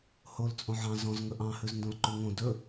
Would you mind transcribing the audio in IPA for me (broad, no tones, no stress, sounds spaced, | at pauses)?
h o l t͡sʼ õ ʕ ɑ̃ z ɔ̃ z ŋ ɵ ʔ ɑ̃ h ʉ z n d õ l ǃ ʉ ŋ õ d ɵ